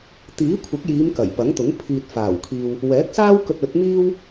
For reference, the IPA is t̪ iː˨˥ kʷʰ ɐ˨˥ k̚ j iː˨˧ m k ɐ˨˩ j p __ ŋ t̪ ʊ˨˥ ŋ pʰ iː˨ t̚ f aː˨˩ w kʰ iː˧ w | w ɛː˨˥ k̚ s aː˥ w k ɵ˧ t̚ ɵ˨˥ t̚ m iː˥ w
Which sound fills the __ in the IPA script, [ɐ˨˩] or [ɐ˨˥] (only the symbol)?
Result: ɐ˨˥